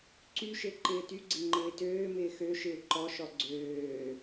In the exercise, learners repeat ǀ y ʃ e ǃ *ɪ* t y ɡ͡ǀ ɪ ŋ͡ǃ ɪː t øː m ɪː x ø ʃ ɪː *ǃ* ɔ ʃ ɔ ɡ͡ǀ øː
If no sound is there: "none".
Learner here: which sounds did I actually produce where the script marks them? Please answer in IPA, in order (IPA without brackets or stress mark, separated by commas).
ɪː, ǃ